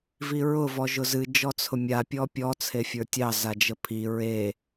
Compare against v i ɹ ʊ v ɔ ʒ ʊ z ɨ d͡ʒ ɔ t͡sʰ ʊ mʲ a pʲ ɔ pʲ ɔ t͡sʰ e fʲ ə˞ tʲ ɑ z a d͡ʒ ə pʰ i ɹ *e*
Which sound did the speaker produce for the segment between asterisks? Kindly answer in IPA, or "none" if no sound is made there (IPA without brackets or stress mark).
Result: e